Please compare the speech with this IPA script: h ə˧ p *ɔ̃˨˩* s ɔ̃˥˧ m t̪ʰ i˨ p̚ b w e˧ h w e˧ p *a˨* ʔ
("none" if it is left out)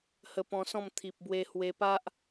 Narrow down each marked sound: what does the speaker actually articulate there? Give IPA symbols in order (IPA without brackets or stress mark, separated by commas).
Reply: ɔ̃˧, a˦